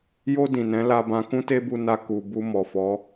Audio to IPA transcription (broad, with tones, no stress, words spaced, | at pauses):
jo˧ dĩ˨nɛ̃˨˦ la˧bã˧ kũ˦te˦bu˧ na˧ ku˨ bu˧ mɔ˨fɔ˨˦